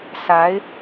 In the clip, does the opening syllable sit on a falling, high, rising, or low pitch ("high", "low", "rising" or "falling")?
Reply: rising